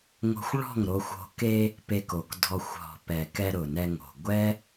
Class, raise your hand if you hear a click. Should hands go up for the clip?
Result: no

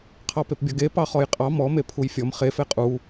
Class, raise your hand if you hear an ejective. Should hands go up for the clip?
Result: yes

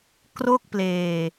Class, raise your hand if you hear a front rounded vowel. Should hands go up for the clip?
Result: no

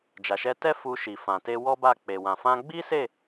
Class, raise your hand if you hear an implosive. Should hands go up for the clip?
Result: no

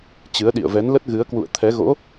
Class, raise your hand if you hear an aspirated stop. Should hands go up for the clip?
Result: yes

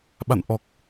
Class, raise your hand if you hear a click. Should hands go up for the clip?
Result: no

